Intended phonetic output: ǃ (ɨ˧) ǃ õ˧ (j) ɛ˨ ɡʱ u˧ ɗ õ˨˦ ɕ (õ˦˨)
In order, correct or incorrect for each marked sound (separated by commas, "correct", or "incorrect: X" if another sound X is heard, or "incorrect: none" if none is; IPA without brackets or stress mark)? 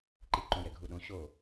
incorrect: i˧, correct, incorrect: o˦˨